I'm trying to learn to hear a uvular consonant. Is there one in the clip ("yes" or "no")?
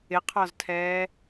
yes